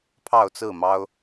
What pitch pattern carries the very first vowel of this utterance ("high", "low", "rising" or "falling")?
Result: falling